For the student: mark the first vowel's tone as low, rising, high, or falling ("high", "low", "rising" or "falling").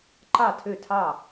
falling